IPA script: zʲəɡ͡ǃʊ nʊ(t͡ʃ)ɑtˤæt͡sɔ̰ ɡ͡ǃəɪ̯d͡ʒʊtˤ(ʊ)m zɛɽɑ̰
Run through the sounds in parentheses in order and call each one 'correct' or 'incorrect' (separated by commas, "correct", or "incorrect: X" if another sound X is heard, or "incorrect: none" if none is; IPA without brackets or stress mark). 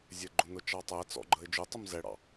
correct, correct